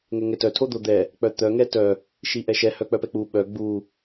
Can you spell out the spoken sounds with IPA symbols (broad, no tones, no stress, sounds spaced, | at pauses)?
ŋ ɛ ŋ ɛ t œ tʰ o d̪ o d̪ ɛ | k͡p œ t̪ œ ŋ ɛ t œ | ʃ i ʔ ɛ ʃ ɛ h œ k͡p œ p ɛ k͡p u ɓ œ ɡ͡b u